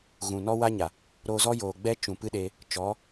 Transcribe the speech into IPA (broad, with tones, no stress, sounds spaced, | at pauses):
ɣ ũ˨ n ɔ˦ w a˦ ɲ a˨ | ɾ oː˧ z ɔ˦ j oː˨ ɡ͡b ɛ˦ t͡ʃ ũ˨ p ɨ˦ ɗ e˧ | t͡ʃ ɔ˨˦